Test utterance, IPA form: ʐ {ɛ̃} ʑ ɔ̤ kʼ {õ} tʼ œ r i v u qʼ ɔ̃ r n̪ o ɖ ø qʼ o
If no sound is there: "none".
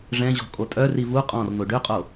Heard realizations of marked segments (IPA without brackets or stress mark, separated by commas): ɛ̃, o